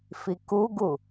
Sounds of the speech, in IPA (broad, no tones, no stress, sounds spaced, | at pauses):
f i k u ɡ u